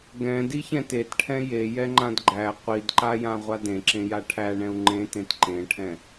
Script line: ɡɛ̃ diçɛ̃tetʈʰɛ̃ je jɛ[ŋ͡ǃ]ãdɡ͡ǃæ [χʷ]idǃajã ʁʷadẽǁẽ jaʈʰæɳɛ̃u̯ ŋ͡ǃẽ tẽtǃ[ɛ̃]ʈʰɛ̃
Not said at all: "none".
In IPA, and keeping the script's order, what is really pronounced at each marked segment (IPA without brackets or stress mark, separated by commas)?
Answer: ŋ͡ǃ, qʷ, ẽ